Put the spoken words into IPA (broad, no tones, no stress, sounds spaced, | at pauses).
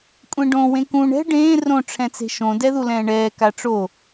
kʷʼ ẽ ɖ õ w ẽ k ũ ɳ ɛ̤ ɖ ẽː r õ ʈ͡ʂʰ ɛ̃ t͡s e̤ ʃ õ d ɛ ð u l ɛ̃ː ɳ ɛː k a ʈ͡ʂ o